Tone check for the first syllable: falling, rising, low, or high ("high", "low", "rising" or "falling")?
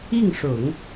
falling